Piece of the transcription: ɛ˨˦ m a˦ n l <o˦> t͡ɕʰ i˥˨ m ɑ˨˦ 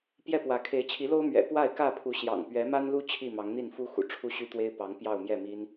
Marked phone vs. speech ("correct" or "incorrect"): incorrect